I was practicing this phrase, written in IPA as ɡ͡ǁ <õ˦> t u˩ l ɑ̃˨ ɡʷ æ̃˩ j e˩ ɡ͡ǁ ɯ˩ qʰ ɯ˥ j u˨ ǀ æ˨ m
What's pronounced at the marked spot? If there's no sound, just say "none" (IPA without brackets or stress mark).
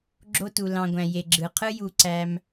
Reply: o˦